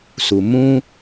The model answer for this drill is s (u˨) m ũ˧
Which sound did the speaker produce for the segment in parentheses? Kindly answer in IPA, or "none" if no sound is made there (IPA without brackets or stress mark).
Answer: u˨